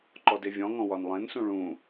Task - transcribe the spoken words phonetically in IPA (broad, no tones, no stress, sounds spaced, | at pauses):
ǃ ɔ d e vʲ ɔ̃ ŋ ɔ̃ w ɒ n lˠ ẽ n s ũ ɭ ũ